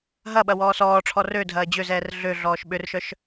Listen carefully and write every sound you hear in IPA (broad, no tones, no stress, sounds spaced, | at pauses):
ɦ ɐ ɓ ɐ w ɔː s ɔː ʈ͡ʂʰ ɔ r ø dʱ ɐː d͡ʑ ø z ɛː r ɮ ø ɮ ɔː ʃ ɓ ʏ r ʃ œ ʃ